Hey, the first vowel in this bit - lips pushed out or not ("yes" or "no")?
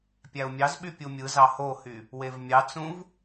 no